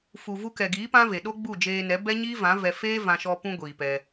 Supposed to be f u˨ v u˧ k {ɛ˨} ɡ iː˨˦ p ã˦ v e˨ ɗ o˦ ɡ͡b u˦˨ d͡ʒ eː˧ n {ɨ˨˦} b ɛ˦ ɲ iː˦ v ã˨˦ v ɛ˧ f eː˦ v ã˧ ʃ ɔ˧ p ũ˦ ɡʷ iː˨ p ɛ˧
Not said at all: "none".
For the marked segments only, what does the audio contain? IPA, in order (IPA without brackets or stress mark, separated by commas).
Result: ɛ˨, ɛ˨˦